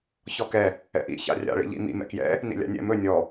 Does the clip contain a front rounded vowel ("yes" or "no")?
no